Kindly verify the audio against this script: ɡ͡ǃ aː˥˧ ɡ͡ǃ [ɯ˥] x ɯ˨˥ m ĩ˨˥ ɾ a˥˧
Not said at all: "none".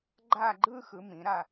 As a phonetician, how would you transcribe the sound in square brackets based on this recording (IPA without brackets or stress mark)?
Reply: ɯː˥